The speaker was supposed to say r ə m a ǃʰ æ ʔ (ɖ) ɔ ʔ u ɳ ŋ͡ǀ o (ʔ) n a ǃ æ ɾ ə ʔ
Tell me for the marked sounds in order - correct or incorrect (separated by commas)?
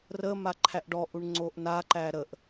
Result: correct, correct